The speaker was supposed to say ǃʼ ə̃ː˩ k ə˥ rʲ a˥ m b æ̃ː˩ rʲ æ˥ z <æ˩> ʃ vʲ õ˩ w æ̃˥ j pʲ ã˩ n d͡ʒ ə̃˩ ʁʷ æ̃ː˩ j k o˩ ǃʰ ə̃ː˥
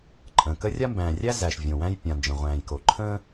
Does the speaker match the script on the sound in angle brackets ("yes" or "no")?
yes